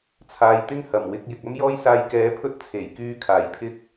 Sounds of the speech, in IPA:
t͡sʰ aː˨˧ j t̪ ɪ˥ ŋ h ɐ˨˩ m w ɪ˧ k̚ j ɪ˨ k̚ ɐ˥ m j ɔː˥ j s aː˧ j k ɛː˨˥ pʰ ɵ˥ t̚ t͡sʰ e˨˩ j k yː˧ kʰ aː˨˩ j pʰ ɪ˥ k̚

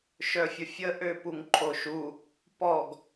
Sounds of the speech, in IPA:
ʃ œ fʲ ə fʲ ə ʔ ø p u ŋ ǃʰ o ʃ u | p ɔ ɡ

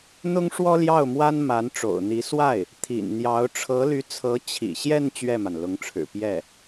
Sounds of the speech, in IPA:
n̪ ʊ˥ ŋ ʂ w ɔ˥ l j ɑ˥˩ ʊ̯ m w a˥ n m a˧˥ n ʈ͡ʂ o̰˨˩ ʊ̯ n̪ i˧˥ s w a˥˩ ɪ̯ | t̪ʰ ḭ˨˩ n n̪ j ɑ˧˥ ʊ̯ ʈ͡ʂʰ ɤ˧˥ l y˧˥ t͡sʰ ɤ˧˥ t͡ɕʰ ḭ˨˩ ɕ j ɛ˥˧ n t͡ɕ ɥ ɛ˥˩ m a˩ n l ʊ˧˥ ŋ ʈ͡ʂʰ ɻ̩˨˩ p j ɛ˥˩

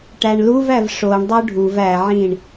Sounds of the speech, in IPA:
ʈ æ ɳ l u v æ v ʂ o ɳ dˤ o ɖʱ u v æ ʕ ĩː ɳ

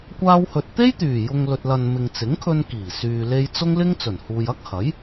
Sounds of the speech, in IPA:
kʷ aː˧ w h ɵ˨ t̚ t̪ e˥ j t̪ yː˨˩ j ʊ˨ ŋ l ɵ˨ t̚ l ɐ˨ n m ɪ˨ ŋ t͡s ɪ˨˥ ŋ kʰ ɵ˧ n k iː˨˩ s yː˨ l e˧ j t͡s ʊ˥ ŋ l ɪ˥ ŋ t͡s ɵ˨˩ n h uː˨ j ɐ˥ k̚ h ɐ˨˥ j

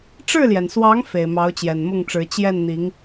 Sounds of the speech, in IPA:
ʈ͡ʂ ɻ̩˥˩ l j ɛ˩ n s w ɑ˧˥ ŋ f e˨˩ ɪ̯ m ɑ˧˥ ʊ̯ t͡ɕ j ɛ˨˩ n m ʊ˥˩ ŋ ʈ͡ʂ ɻ̩˧˥ t͡ɕ j ɛ˥˩ n n̪ i˧˥ ŋ

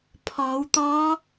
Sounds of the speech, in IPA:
pʰ ɔː˩˧ w t̪ ɔː˧˥

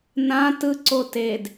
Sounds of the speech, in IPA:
n ã t ɯ ǀ o t e d

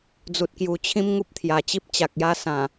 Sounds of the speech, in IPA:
d͡z u˨ t̚ k j u˨˩ t͡ɕʰ ĩ˦ m ŋ u˦ p̚ t̪ʰ j a˨˩ t͡ɕ i˦ p̚ t͡ɕ a˨ k̚ j a˦ s ã˨˩

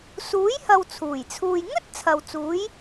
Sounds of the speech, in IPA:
s uː˨˥ j h ɐ˨ w t͡sʰ uː˨˩ j t͡sʰ uː˧ j ŋ ɵ˥ t̚ t͡sʰ ɐ˨ w t͡s uː˨˥ j

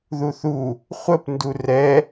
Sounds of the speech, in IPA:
ð u θ u | χʷ ə p n d u r ɛ

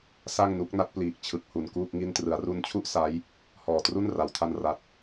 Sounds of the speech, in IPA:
s a˥˩ ŋ n u˦˥ k̚ n a˦˥ t̚ p l iː˨˩ k̚ t͡ɕʰ ɯ˨˩ k̚ h u˨˩ n k uː˥˩ k̚ ŋ i˧ n t r ɯ˩˦ a̯ r u˧ n t͡ɕʰ u˥˩ ʔ s a˦˥ j | h ɔː˨˩ t r u˥˩ n r a˩˦ w tʰ a˧ n r a˨˩ t̚

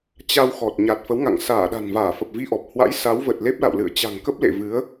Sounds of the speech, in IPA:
t͡ɕ a˧ w x ɔ˨˩ t̚ ɲ a˨˩ t̚ f ə˨˦ w ŋ a̰˧˨ ŋ s aː˧˩ ɗ a̤˨˩ n v aː˧˩ f ə˨˩ p̚ v i˧ ʔ ɔ˨˩ p̚ h w a̰˧˥ j s a˨˦ w v ə˨˩ t̚ l e˦˥ p̚ l a̰˧˨ w l ɨ̰˧˨ ə̯ t͡ɕ a̤˨˩ ŋ k ə˦˥ p̚ l ḛ˧˨ v ɨ˨˦ ə̯

